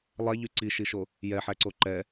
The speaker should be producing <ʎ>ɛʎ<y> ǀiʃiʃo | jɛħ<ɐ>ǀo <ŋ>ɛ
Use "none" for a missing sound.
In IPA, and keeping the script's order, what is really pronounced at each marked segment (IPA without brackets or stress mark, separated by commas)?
lˠ, y, æ, ǃ